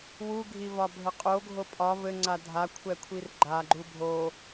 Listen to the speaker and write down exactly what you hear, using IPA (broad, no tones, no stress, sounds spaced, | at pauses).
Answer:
w u ɡʱ i v ɒ bʱ ɘ qʼ o ɡʱ o pʼ ɒ v ɘ ŋ͡ǀ a dʱ a kʷʰ ɛ kʷʰ i r ɡ͡ǃ a ɡ͡ǃ u bʱ o